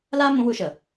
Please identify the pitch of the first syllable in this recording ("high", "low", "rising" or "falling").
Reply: high